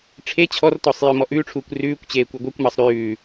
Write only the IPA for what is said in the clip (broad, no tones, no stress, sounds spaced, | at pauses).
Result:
ʈ͡ʂʰ e t͡ɕʰ ɔ r t ɔ sˤ j œ m ɔ ʔ ʉː ʈ͡ʂʰ uː kʷ r ʉː kʷ t͡ɕ eː kʷ œ ɡʷ œ kʷ m ɑ sˤ ɾ ʉː